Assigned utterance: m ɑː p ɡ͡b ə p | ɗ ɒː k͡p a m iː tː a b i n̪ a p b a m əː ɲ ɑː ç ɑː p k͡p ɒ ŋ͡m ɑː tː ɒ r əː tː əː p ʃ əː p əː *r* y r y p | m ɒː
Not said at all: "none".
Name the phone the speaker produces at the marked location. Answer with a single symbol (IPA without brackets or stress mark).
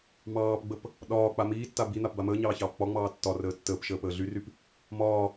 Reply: ɮ